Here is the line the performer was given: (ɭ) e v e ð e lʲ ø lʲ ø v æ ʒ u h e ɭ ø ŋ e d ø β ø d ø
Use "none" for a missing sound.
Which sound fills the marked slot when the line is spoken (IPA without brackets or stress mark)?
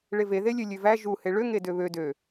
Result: ɭ